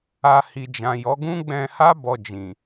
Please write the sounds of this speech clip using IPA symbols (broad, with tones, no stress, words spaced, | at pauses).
a˧ hi˨d͡ʒã˨jɔ˨˦ɡũ˦ ɡ͡bɛ̃˧ha˦ bɔ˧d͡ʒĩ˨